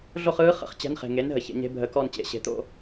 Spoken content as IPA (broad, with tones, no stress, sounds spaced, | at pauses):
ɮ o˥˧ χ ɯː˧˥ χ ə̰˨˩˦ χ t͡ɕ ɛ̤˧˥ n χ e̤˨ ŋ e˩˥ n ɦ ə˩˥ ç ḛ˨˩˦ ɲ e̤˧˥ bʱ ə˧˥ k ɔ˥˧ n t͡ɕ ḛ˨˩˦ ɕ e̤˨ t̪ o̰˥˧